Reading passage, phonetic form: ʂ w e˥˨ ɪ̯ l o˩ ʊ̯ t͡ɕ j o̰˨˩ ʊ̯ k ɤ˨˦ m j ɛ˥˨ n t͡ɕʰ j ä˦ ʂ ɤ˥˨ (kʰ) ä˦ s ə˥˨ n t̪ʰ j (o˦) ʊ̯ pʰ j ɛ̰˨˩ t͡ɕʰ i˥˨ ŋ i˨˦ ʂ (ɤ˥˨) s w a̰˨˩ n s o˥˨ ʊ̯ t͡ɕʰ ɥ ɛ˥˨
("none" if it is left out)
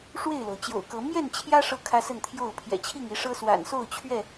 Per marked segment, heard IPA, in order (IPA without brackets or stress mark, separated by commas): kʰ, o˥˨, ɤ˦